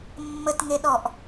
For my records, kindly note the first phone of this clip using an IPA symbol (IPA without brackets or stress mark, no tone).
mː